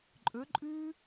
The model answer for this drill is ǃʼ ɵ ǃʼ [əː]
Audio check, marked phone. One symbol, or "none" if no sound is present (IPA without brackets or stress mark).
ʉː